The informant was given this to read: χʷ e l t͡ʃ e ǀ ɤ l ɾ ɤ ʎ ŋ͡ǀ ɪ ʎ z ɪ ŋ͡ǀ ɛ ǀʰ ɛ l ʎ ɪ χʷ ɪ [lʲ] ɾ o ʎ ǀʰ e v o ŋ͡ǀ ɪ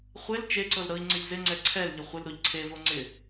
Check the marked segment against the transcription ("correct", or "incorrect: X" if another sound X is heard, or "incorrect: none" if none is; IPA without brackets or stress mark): incorrect: l